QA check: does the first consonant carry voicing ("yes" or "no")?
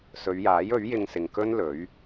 no